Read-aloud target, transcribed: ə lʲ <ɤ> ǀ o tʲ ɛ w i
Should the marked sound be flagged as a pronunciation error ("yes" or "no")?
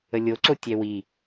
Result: yes